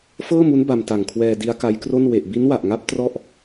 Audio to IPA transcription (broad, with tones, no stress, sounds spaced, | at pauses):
f ɤː˥˩ m u˦˥ n b a˧ m t a˨˩ ŋ kʰ w ɛː˧ d i˦˥ a̯ k a˦˥ j k r o˥˩ n w e˨˩ ʔ b i˦˥ n w a˨˩ ʔ ŋ a˦˥ p̚ t r ɔ˥˩ ʔ